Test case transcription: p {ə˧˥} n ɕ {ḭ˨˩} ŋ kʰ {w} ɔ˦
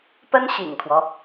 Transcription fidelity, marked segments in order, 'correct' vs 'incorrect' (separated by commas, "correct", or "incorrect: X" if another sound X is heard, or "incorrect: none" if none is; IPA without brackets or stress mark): incorrect: ə˥, correct, correct